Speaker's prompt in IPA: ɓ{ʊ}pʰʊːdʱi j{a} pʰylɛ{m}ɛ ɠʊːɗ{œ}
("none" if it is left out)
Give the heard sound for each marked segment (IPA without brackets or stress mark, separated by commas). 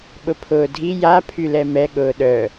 ʊ, a, m, œ